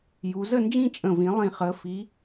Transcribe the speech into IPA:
j u˩˧ z ə˥˧ n d͡ʒ ĩ˥˧ t͡ʃʼ ə̃˨˩ v ĩ˩˧ lˠ ĩ˨˩ χ əː˩˧ f i˩˧

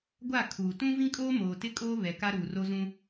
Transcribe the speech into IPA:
ɡʷ a˦˨ kʰ uː˨ t ũ˦ v ĩ˦ kʼ oː˦ m oː˨ t ɪ˦ kʼ oː˦ β ɛ˨ k a˦ ɾ uː˨ r o˦ z ũ˦

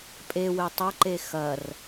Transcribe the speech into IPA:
pʼ e w e tˤ ɐ ǃ e x ɐ r

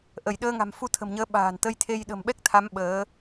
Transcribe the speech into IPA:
ʔ ə˧˩ j ɗ əː˧ ŋ a̤˨˩ m f u˧ t̪ʰ ə̤˨˩ m ɲ əː˨˦ ɓ a̤ː˨˩ n t̪ ə˧ j t̪ʰ e˧ j ɗ ə̤˨˩ m ɓ ɛ˦˥ k̚ t̪ʰ a˨˦ m ɓ əː˨˦

